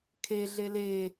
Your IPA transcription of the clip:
kʰ e ɮ e l e

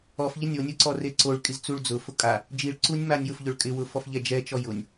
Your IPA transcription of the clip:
ɔ f ʎ ɪ nʲ o nʲ ʊ ǀ ɔ r e ǀ o ɭ kʼ i z t͡s u ɭ d͡z ʊ f ʊ kʼ a | d͡ʒ i ɭ ǀ u nʲ m a nʲ j ʊ f ʎ ʊ ɭ kʼ ɪ w ʊ f ɔ f ʎ ɛ d͡ʒ ɛ t͡ʃ ɔ j ʊ nʲ

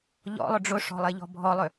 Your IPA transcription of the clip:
ʎ ɔ̰ lˠ ʊ ɖ͡ʐ ʊ ʂ ɔ̤ lˠ e ʎ ɔ̤ bʱ ɔ lˠ ʏ

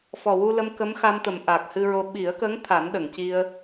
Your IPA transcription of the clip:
f ɔ˨˩ w u˧ l ə˧ m k ə˧˥ m x a˧ m t̪ ə˨˩˨ m ʔ a˨˩ k̚ h ɨ˧ ɹ o˧ ɓ i˨˩˦ ə̯ k ə˧˥ ŋ t̪ʰ a˨˩˦ n ɗ ə˨˩˨ ŋ c i˧ ə̯

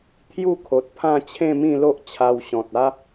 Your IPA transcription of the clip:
t̪ʰ j u˥˧ kʰ o˨ t̚ pʰ ã˥˧ t͡ɕʰ ẽ˥˧ m ĩ˥˧ l o˦ ʔ t͡ɕʰ a˧ w ɕ ɔ̃˨ t̚ a˦

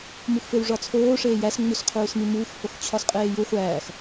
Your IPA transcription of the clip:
m u x f e w ʐ ɒ t͡sʰ oː ʂ eː j æ s ŋ͡m u s qʰ uː s m i m uː x h o x t͡ɕʰ ɒ s qʼ eː j u χʷ æː x

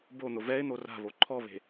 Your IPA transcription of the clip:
b o n̪ ʊ v ɛ ɪ̯ n̪ o r a̤ β o ǃʰ ɔ β e̤

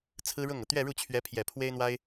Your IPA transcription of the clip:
t͡sʰ ɹ̩˥ ɻ ʊ˥˩ ŋ ɤ˩ t̪ ɥ ɛ˥˧ ɻ u˥˩ t͡ɕʰ ɥ ɛ˧˥ pʰ j ɛ˨˩ pʰ w e˥ ɪ̯ n̪ w a˥ ɪ̯

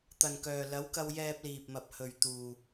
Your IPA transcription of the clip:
t̪ ɐ˨ n k œː˨ l ɐ˨˥ w k ɐ˧ w j ɛː˧ p̚ l iː˨ p̚ m ɐ˨ p̚ h ɵ˨ ɥ t̪ uː˨

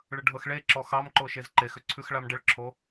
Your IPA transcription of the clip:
ɭ ə ɖʱ ɤ x ɭ e ǁ ɔ x ɑ m ǃ o ʃ e z ǃ e x ʏ ǀʰ ʉ x ɭ a m ɖ ə ɭ ǁʰ o

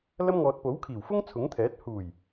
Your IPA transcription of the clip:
l ɐ˥ m ŋ ɔː˧ t̚ p o˨˥ w kʰ iː˨˩ w f ʊ˥ ŋ t͡sʰ ʊ˨˥ ŋ t̪ʰ ɛː˨˥ t̚ h uː˨˩ j

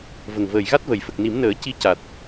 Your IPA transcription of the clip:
v ə˨˩ ŋ v əː˨˩ j ɣ a˦˥ t̚ v ə˨˩ j f ə˨˩ k̚ n i˨˩˦ m n əː˨˩˦ c i˧ c a˨˩ t̚

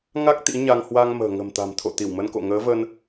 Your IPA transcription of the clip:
ŋ a˦˥ k̚ t̪ ḭ˧˥ ɲ a˧ ŋ h w a˧ ŋ m ə̤ː˨˩ ŋ ə̤˨˩ m t̪ a̤˨˩ m t̪ʰ o̰˧˨ t̪ i˧˩ w m ə˧ n k o̰˧˨ ŋ əː˨˦ v ə˧ n

